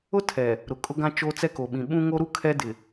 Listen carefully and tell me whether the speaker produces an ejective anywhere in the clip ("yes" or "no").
yes